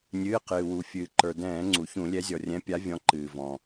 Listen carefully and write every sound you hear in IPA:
nʲ ɨː˩˧˩ q ɨː˩ w u˩ fʲ ɨː˩ ǃ ə˞˩ d ɛ̃ː˧˩˧ ŋ͡ǀ u˩ ç ũ˧˩˧ lʲ ɛ˨˦ zʲ ɔ˩ rʲ ɛ̃˨˦ pʲ a˨˦ vʲ ɔ̃˨˦ ǃ ɨː˩ v ɔ̃˩

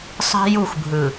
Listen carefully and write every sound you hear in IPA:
sˤ i̤˦ j u˦˨ xʷ bʱ ɯ˨

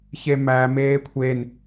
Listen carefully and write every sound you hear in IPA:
ç e m æ m eː kʷʰ e n

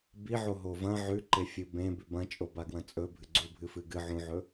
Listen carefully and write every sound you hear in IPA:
b i ʕ o ɦ o v ɐ̃ ʕ ʉ ǃ e fʲ ɨ b ẽ b ʉ b ɐ̃ t͡ʃʼ o b a ɡ w ɐ̃ t͡sʼ ɵ bʱ ɨ ɡ͡ǀ u bʱ ɨ f ɨ ɡ ɨ ʕ ũ ʕ ɵ

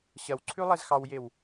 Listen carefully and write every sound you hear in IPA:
ɕ ɐ w ǀʰ ʉ lˠ ɛ z x ɑ w j e w

